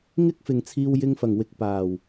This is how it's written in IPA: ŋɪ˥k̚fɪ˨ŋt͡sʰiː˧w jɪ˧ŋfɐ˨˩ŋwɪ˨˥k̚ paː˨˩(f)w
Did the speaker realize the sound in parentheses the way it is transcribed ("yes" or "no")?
no